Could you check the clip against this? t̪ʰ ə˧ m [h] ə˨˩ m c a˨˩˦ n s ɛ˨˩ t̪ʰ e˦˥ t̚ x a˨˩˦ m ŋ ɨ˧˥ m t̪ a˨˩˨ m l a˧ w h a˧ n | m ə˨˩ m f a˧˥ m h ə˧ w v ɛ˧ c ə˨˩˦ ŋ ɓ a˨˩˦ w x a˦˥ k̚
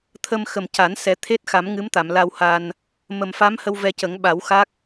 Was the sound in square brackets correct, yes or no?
no